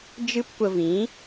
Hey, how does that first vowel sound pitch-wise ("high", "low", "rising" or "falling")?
high